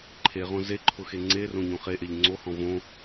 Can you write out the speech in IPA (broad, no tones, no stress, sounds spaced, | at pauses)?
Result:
ǃʰ e ʁ õ z e ǃʰ ʊ x e ŋ͡ǀ e r õ ɲ õ χ e ʔ e ʎ ŋ͡ǀ o h ɔ̃ v õ